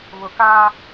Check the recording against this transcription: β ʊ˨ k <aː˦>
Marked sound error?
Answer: no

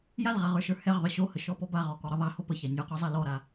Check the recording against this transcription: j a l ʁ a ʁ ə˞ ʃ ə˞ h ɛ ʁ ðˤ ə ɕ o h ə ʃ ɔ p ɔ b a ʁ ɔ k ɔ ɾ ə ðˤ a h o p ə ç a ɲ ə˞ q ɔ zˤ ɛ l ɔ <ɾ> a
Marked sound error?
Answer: no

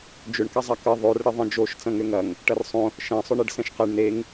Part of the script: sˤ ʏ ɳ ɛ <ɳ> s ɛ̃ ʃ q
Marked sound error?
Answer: yes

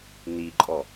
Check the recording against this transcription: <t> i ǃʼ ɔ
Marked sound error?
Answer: yes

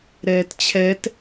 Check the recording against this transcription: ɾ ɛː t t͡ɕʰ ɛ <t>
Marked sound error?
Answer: no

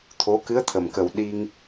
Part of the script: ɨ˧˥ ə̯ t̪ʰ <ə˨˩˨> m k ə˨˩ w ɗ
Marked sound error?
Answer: yes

